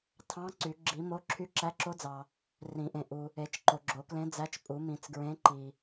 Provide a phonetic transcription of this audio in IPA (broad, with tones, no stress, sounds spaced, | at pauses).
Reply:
tʰ ɑ̃˧˥ ǀ y˨˩˦ ɡ͡ǁ i˨˩˦ m o˧˥ ǁʰ y˧˥ ǁ æ˧˥ ǁ o˧˥ d͡z ɑ˨ | r ĩ˨˩˦ ʔ ẽ˨ ʔ u˨ | e˨˩˦ t͡ʃ ǃ o˨ ɡ͡ǁ o˨˩˦ k l ẽ˧˥ d͡z æ˧˥ t͡ʃ pʼ u˨˩˦ m ĩ˨˩˦ t͡s ɡ ɹ ẽ˧˥ ǃ i˨